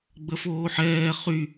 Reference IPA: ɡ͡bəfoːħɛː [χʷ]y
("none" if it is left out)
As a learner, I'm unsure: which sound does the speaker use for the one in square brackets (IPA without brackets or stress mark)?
χ